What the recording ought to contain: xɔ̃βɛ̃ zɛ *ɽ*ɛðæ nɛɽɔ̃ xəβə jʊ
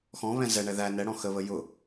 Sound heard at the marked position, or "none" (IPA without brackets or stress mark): ɳ